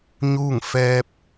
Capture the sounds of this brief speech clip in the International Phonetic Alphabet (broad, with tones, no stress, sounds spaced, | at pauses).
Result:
ɲ uː˥˨ ŋ f ɛː˧ p̚